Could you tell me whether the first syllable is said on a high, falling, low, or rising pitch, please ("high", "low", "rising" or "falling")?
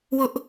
high